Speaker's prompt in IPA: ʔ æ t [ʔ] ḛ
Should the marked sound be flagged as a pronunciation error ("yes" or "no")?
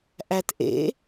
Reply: no